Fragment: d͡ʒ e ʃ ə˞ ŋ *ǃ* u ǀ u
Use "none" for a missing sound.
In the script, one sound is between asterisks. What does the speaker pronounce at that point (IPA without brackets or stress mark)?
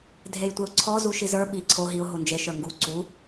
ɡ